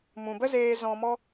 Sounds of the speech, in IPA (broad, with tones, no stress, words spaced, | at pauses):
mũ˨bə˦zeː˧ zɔ̃˧mɔ˦